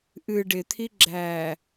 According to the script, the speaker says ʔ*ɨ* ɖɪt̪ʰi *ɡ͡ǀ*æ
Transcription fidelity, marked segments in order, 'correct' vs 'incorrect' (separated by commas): correct, incorrect